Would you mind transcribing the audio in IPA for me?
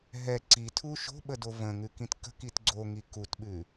ɦ ɛ ǀ i tʰ u ʃ o̤ ɓ ə d o v ə̃ ŋ ʉ k ĩ t k ə̤ k i t ɡ͡ǀ o ŋ i k u t ɓ ʉ

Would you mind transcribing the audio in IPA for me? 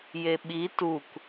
j e ɓ i t u k

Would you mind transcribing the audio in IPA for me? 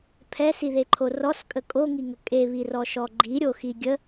pʰ ɛ s i ð e ǃʰ o r ɔ s kʼ ə kʼ o ŋ i ŋ ə kʼ e β i r ɔ ʃ ɔ ɡ͡ǃ i ɾʲ o x i ɡʲ ə

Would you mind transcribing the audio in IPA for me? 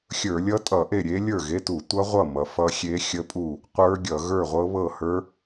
xʲ ə˞˧˩˧ lʲ ʌ˦˥ tʼ ʌ˧˩˧ ʔ e˥˩ ɾʲ e˦˥ lʲ ə˞˥˩ ɣ e˧˥˧ t u˧˩˧ tʷ ʌ˦˥ ʁʷ ʌ˥˩ m ʌ˩˧ f ʌ˦˥ xʲ e˦˥ xʲ ə˦˥ pʼ u˥˩ | qʷ ə˞˦˥ ɡʲ ʌ˧˩˧ ɣ ə˞˥˩ ʁʷ ɤ˦˥ β ɤ˥˩ h ə˞˦˥

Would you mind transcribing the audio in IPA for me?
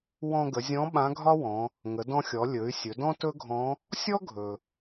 w ɔ̃˧ ɡ ə˩˧ zʲ ɔ̃˧˥ ɓ ã˧˥ ɡʱ ɒ˥ w ɔ̃˩˧ | ŋ ə˩˧ d ɔ̃˧ xʲ ɔ˩˧ lʲ ɵ˩˧ y̯ sʲ ɵ˩˧ d ɔ̃˥ t ɵ˥ ɡʱ ɔ̃˧˥ | sʲ ɔ˥ ɡʱ ɵ˩

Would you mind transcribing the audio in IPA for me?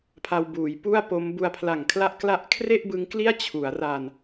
pʰ a˧ w b uː˩˦ j p u˥˩ a̯ p o˦˥ m b u˧ a̯ pʰ l a˨˩ ŋ kʰ l a˦˥ ʔ k l a˦˥ ʔ kʰ r e˥˩ ʔ b ɯ˦˥ ŋ k l i˥˩ a̯ t͡ɕʰ u˩˦ a̯ r a˧ n

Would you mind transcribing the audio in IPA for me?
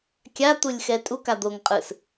kʲ a t̪ u lʲ x ɛ tʼ u k a d̪ o ŋ qʼ ɯ s

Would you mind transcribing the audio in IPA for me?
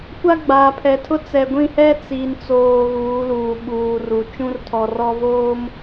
kʷ a˦ ɡ͡b aː˨ pʰ ɛ˨ tʰ ʊ˦ t͡s ɛ˨ ɡʷ ĩ˦˨ h ɛ˦ t͡s i˨ n t͡s oː˨ ɣ uː˨˦ l uː˨ ɓ uː˨ r u˨ t͡ʃ ũ˦ r tʰ ɔ˨ r ɔ˦ v oː˦ m

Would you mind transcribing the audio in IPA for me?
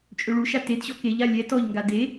t͡ʃʼ ø ɭ u ʃ a t e d ɕ ɔ k e ʎ a lʲ ɛ t ɔ ʎ ŋ ɡ a d e

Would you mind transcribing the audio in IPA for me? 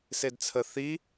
s e d t͡sʰ ə θ i

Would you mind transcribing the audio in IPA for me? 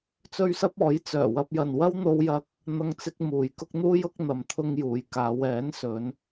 t͡s ɵ˥ ɥ s ɐ˥ p̚ ɔː˨˥ j t͡s œː˨˩ w ɐ˧ p̚ j ɐ˨ n w ɐ˥ w n̪ o˥ w j ɐ˥ k̚ | n̪ ɐ˥ ŋ t͡s ɪ˥ k̚ m uː˨ j k ʊ˥ k̚ n̪ uː˥ j ʊ˨˥ k̚ n̪ ɐ˨ m t̪ʰ ʊ˧ ŋ j uː˨ j k aː˨˧ w ɛː˨˥ n s ɵ˨˧ n

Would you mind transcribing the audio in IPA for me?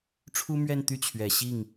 ʈ͡ʂʰ u˥ m ɥ ɛ˥˧ n t̪ y˥˩ t͡ɕʰ ɥ ɛ˨˩ ɕ i˥˩ ŋ

